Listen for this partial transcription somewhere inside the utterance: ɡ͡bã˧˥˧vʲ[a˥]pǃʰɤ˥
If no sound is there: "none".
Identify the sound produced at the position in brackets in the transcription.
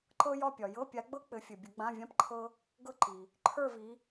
ã˥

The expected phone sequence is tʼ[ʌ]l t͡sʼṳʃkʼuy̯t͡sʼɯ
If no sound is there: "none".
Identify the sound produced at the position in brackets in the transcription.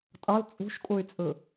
ʌ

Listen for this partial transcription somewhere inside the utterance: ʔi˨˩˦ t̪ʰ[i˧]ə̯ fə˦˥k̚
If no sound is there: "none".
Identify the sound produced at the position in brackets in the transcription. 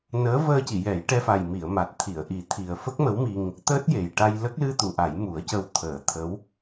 i˨˩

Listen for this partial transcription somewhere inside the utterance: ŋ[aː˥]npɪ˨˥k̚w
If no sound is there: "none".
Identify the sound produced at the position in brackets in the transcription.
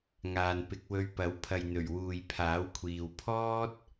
aː˨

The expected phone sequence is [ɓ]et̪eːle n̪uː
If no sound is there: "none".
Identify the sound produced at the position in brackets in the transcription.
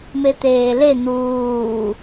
m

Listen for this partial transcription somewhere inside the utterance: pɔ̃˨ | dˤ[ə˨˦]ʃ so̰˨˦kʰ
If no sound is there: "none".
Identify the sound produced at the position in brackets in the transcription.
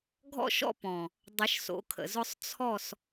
ə˨˦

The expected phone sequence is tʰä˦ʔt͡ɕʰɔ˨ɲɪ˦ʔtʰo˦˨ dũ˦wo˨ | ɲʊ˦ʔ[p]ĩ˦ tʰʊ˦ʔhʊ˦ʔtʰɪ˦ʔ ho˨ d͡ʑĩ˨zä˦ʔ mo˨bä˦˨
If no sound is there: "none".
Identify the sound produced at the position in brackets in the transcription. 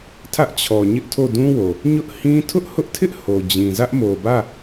h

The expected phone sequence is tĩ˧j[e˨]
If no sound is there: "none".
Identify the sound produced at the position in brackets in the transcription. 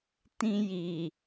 i˨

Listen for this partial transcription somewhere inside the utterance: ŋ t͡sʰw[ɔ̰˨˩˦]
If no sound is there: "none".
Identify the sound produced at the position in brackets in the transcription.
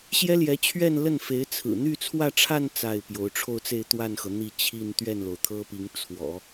ɔ̰˨˩˦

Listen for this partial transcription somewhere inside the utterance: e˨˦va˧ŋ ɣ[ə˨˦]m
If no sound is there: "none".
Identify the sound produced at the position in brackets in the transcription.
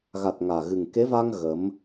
ə˨˦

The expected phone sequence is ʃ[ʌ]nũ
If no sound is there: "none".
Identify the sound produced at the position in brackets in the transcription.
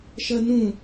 ʌ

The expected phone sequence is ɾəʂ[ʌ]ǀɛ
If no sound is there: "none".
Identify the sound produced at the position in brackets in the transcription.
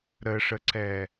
ə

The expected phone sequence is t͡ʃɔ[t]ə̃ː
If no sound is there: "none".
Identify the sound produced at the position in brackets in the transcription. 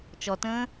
t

